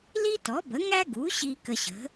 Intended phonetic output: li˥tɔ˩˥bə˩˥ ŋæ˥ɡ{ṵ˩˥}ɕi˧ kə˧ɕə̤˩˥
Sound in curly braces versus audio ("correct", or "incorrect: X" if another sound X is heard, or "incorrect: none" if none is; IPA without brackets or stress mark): incorrect: u˩˥